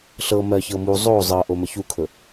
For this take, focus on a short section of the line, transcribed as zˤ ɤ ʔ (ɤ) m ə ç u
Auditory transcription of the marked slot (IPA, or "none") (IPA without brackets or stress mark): o